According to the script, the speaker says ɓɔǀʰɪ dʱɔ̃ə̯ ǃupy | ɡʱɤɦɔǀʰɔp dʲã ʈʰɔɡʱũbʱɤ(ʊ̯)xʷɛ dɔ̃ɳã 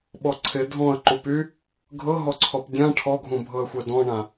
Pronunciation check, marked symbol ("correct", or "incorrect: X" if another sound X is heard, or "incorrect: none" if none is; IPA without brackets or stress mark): incorrect: ə̯